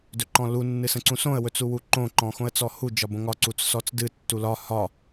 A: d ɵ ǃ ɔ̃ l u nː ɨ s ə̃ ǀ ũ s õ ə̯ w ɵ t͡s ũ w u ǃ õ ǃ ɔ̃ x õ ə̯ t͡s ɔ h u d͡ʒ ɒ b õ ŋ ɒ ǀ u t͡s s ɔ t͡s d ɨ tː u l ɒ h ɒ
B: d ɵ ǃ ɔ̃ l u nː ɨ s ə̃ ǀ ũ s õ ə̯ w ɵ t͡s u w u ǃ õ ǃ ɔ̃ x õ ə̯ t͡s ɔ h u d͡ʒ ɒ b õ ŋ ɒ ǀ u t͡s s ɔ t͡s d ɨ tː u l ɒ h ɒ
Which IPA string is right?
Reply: B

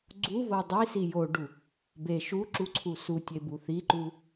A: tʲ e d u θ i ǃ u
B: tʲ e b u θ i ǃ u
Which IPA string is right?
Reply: B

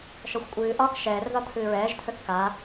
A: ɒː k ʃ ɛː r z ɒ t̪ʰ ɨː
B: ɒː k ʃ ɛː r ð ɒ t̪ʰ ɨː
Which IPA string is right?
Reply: B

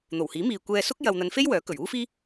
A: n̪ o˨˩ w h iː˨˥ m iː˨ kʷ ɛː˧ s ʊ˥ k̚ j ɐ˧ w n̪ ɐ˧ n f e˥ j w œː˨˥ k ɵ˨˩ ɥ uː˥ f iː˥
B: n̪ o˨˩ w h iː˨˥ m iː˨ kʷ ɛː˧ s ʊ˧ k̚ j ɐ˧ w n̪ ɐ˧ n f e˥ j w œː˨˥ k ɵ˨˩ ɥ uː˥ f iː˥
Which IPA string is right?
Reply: A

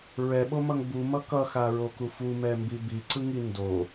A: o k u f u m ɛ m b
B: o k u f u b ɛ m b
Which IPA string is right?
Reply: A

